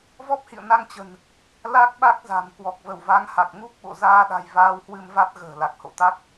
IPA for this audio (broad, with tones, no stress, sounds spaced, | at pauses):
v ɔ˦˥ p̚ h ḭ˧˨ ə̯ n a˧ ŋ t͡ɕ ə̤˨˩ n | l a˦˥ k̚ ɓ a˦˥ k̚ z a̤˨˩ m k w ɔ˨˩ k̚ v ə˧˩ w v a˨˦ ŋ h a˨˩ k̚ ŋ u˦˥ k̚ ɓ o̰˧˨ z aː˧ ɗ a̤˨˩ j v aː˧ w h w ɨ˧ m v a˦˥ t̚ ɣ ə̤ː˨˩ l a˨˩ k̚ h o̰˧˨ t̪ a˦˥ k̚